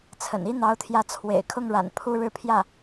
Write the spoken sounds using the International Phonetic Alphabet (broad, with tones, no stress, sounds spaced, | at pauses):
t͡sʰ ə̰˨˩ n i˥ n̪ ɑ˧˥ ʊ̯ t̪ʰ j ä˧˥ t͡sʰ w ḛ˨˩ ɪ̯ kʰ ʊ˥˩ ŋ ɻ a̰˨˩ n pʰ u˥˧ ɻ ɻ̩˥˧ pʰ j ä˥˩